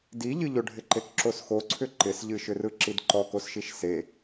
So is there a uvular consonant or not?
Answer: no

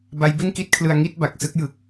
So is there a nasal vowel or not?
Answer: no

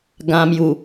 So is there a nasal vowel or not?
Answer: yes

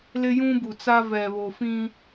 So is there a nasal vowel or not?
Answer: yes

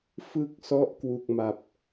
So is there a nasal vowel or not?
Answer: no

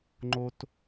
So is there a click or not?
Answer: yes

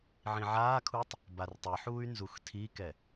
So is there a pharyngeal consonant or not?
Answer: yes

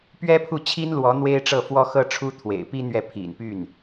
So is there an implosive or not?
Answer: no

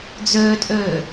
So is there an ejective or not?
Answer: yes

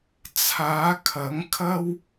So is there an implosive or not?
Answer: no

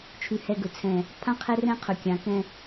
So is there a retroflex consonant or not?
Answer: no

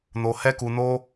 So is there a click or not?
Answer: no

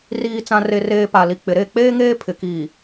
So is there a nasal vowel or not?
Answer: yes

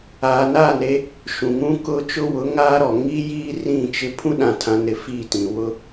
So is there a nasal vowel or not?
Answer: yes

